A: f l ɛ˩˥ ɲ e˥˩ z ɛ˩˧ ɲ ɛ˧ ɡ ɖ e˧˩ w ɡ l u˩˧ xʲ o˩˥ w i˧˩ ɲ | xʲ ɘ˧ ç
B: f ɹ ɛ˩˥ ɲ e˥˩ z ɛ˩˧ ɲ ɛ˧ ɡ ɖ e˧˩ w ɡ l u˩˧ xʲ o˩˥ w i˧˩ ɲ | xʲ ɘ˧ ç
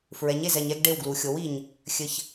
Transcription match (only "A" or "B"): B